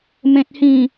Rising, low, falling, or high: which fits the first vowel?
low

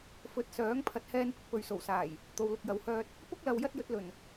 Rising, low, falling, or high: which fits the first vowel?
rising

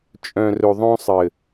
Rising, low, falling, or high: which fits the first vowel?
low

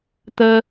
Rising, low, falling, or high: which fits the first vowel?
high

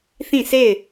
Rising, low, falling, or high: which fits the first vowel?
falling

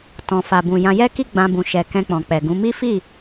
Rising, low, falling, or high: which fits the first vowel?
low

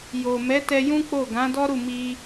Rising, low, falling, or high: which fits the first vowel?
low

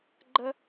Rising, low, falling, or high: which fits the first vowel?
high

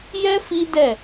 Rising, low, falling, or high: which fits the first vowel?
high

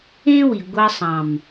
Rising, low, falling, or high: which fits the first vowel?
high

